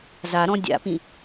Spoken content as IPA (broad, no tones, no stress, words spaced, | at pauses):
zaɾɔ̃ dʲa̰pĩ